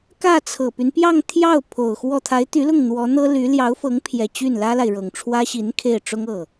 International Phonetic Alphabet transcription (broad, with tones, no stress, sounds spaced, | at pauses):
k ä˥˩ t͡sʰ ɤ˨˩ p y˦ n p j ɑ˥˧ ŋ t̪ʰ j ɑ˥˩ ʊ̯ pʰ o˨˩ ʊ̯ x w ɔ˥˩ t̪ʰ a˧˥ ɪ̯ t̪ y˧˥ l ʊ˥˩ ŋ n̪ w ɔ˧˥ n̪ ɤ˥ l y˧˥ l j ɑ˧˥ ʊ̯ f ɤ˧˥ ŋ pʰ j ɛ˨˩ t͡ɕ y˥˩ n l ä˥ l a˨ ɪ̯ ɻ ɤ˨˩ ŋ ʈ͡ʂʰ w ä˥ ɕ i˧˥ n kʰ e˥˩ ɪ̯ ʈ͡ʂ ʊ˥ ŋ ɤ˥˩